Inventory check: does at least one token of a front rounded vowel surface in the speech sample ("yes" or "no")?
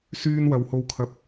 yes